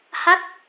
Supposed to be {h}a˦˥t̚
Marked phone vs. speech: correct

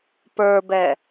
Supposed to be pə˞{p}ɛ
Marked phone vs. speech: incorrect: b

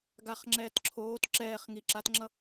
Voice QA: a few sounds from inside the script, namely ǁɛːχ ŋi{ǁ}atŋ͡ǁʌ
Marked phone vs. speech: correct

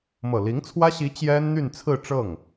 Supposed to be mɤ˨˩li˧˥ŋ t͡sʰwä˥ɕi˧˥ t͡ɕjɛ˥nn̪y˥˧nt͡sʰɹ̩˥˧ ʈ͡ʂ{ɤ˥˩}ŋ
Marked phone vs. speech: correct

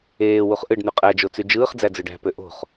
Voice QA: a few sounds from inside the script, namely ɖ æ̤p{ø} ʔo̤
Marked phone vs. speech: correct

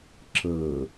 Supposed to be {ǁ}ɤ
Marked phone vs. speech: correct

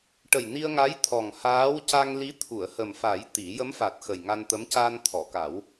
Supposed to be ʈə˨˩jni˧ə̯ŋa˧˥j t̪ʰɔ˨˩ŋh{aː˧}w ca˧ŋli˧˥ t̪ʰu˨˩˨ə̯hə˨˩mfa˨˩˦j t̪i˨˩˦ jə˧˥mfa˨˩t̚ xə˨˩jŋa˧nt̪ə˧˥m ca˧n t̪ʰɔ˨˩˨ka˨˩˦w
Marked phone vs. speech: incorrect: aː˧˥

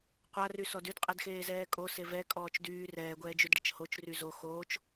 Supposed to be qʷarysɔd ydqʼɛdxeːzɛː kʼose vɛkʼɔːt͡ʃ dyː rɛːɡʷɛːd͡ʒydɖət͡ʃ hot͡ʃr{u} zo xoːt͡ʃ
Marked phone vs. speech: incorrect: y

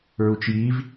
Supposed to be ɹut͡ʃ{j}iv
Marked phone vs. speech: correct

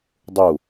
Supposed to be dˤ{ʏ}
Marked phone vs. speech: incorrect: u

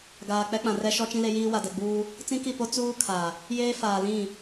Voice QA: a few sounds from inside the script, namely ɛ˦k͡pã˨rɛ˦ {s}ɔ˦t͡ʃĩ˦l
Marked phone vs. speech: incorrect: ʃ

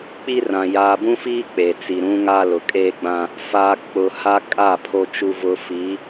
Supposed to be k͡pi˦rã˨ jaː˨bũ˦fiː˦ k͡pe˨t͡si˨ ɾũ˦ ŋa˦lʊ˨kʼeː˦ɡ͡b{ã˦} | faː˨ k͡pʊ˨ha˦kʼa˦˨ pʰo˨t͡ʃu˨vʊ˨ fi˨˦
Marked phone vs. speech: correct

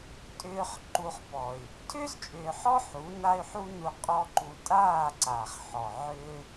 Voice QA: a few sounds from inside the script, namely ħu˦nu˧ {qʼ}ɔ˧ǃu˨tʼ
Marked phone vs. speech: correct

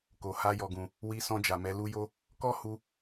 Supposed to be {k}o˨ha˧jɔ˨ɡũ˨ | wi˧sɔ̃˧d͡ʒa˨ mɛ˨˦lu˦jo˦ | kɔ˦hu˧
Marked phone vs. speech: correct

